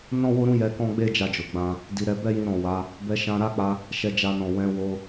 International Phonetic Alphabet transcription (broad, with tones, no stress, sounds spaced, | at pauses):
n ɔ̃˦ w o˦ ɾ ũ˦ j ɛ˧ k ɔ̃˦ ɡ͡b e˦ d͡ʒ a˧ d͡ʒ o˨ ɡ͡b ã˧ | d i˧ ɾ ɛ˧ b ɛ˦ j ĩ˧ ɾ ɔ̃˨ w a˨˦ | b ɛ˧ ʃ ã˧ ɾ a˦ k͡p a˧ | ʃ ɛ˧ d͡ʒ a˧ n ɔ̃˨ w ɛ̃˨˦ w o˧